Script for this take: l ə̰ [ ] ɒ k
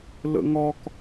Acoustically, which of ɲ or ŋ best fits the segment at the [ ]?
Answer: ŋ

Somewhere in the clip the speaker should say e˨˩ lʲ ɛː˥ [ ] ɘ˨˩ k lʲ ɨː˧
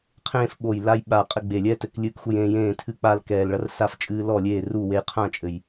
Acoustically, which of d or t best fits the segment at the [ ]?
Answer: t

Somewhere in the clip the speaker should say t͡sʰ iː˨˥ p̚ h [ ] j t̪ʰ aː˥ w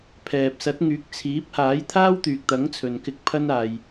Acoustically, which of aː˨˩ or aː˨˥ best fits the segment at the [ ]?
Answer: aː˨˥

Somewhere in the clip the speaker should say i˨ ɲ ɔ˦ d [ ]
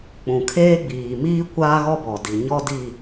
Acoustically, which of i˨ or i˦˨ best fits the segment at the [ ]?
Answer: i˦˨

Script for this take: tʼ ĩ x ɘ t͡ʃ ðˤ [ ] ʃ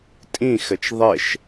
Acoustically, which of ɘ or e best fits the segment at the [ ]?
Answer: e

